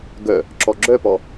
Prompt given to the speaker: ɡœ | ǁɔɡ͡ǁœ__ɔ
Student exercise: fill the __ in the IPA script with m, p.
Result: p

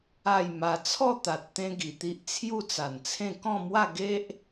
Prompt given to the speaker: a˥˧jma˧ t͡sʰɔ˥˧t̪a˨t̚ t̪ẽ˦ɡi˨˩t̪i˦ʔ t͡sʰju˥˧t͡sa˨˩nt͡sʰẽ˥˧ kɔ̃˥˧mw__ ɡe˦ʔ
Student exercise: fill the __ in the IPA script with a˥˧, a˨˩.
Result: a˥˧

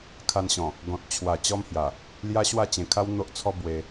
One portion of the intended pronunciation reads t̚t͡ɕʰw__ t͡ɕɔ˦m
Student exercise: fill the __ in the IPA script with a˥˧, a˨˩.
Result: a˨˩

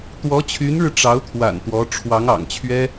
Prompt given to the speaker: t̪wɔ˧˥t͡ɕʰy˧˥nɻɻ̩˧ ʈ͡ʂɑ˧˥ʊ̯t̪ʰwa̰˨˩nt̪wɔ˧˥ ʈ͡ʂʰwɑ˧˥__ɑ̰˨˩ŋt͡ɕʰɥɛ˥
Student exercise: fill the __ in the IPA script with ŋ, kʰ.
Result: ŋ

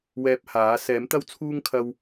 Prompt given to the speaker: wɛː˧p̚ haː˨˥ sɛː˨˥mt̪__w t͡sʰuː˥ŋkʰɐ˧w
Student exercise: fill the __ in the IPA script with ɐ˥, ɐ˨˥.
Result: ɐ˥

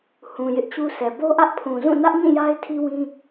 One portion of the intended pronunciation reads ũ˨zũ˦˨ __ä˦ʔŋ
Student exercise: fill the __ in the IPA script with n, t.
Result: n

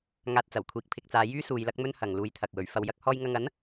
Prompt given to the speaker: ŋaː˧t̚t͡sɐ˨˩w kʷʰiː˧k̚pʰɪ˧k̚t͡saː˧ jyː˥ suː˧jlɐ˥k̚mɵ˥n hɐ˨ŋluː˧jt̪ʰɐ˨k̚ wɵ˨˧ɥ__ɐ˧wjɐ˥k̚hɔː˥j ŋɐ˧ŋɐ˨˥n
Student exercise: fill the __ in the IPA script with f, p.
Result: f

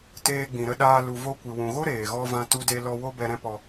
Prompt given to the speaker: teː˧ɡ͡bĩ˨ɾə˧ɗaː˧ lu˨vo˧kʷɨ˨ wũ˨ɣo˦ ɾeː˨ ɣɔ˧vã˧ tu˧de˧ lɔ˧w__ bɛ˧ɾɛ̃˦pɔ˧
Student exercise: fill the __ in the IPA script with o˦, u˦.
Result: o˦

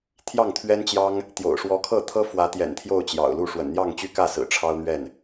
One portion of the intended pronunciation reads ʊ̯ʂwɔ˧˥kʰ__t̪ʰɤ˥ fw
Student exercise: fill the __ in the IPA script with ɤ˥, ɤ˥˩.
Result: ɤ˥˩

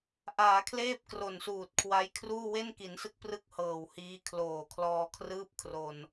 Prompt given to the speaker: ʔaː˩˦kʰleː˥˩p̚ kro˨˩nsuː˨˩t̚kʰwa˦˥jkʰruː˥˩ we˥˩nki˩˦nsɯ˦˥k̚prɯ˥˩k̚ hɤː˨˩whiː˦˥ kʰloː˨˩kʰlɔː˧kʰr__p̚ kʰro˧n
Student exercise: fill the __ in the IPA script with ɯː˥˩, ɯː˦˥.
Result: ɯː˥˩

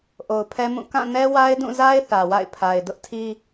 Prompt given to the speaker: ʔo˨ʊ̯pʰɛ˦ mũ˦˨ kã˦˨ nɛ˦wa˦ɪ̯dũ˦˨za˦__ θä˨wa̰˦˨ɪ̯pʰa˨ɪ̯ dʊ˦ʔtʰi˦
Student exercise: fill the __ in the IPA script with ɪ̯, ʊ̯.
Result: ɪ̯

